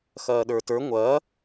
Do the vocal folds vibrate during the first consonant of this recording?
no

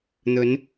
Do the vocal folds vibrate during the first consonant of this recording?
yes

